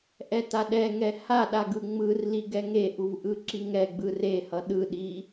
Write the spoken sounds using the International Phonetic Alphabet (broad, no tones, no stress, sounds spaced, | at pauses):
ʔ ɛ t a ɗ ɛ ŋ ɛ h a ɗ a ɡ ɯ ŋ͡m ɯ r l i ɡ ɛ ŋ e ʔ u v ʔ ɯ ǁ i ŋ ɛ ɡ͡b ɯ r e h ʌ ɗ ɯ ɗ i